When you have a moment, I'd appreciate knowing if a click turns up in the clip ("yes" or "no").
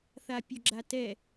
yes